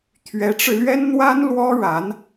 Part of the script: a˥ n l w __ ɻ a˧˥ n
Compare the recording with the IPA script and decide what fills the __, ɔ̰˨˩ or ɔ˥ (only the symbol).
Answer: ɔ˥